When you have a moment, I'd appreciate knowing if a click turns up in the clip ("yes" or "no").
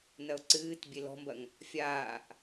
yes